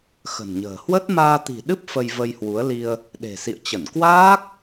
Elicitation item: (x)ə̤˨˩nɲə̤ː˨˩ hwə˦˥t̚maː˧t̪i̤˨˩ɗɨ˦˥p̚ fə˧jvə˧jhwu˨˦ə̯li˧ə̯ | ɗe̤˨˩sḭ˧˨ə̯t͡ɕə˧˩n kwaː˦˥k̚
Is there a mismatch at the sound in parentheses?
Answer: no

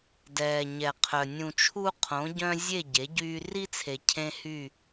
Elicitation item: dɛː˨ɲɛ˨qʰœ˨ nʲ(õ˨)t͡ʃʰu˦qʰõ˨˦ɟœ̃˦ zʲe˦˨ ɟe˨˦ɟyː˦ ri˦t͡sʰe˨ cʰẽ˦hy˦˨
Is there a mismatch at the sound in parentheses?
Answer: yes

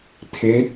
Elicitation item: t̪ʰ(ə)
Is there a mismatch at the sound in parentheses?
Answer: yes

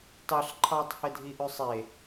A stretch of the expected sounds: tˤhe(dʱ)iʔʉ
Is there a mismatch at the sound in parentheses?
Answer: no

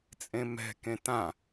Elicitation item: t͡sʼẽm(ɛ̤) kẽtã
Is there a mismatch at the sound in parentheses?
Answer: no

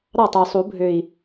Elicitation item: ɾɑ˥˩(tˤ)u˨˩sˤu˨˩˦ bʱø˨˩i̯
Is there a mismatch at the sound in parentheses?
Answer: no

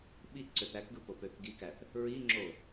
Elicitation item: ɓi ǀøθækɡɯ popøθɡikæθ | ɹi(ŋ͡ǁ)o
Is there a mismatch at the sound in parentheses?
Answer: no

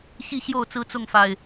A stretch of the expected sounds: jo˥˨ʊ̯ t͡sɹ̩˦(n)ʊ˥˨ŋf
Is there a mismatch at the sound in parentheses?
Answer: yes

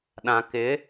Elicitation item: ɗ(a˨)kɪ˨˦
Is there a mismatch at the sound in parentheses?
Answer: yes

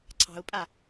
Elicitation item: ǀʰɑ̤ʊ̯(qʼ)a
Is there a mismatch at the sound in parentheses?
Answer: yes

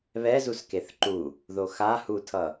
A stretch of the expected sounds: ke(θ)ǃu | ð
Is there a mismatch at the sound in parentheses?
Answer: no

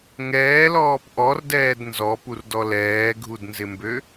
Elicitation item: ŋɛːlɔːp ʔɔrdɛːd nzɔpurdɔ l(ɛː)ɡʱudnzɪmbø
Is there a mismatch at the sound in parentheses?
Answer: no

